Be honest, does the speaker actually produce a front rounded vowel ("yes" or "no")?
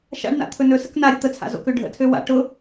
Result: yes